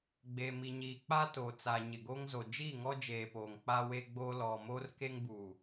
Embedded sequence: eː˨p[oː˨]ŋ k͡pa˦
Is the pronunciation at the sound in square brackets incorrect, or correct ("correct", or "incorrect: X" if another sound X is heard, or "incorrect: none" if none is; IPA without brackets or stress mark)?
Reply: correct